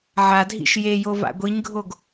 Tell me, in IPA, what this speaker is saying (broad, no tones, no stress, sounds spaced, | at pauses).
ʕ a dʱ ḭ ʃ j e j o v a̰ ɡʷ i ɲ ɡʱ o ɡ